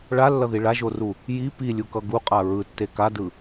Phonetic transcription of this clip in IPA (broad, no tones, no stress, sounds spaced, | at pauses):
ɭ a lː ʌ ð i ɭ a ʒ o r u | j i p i lʲ u k ʌ ɡ u qʼ a ɹ ɯ tː e k a d ɯ